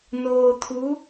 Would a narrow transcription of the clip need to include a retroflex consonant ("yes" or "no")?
no